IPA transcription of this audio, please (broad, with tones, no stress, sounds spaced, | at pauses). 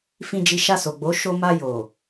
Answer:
f ĩ˧ d͡ʒ i˧ ʃ a˧ s o˨ ɡ͡b o˨˦ ʃ o˧ m a˧ j o˨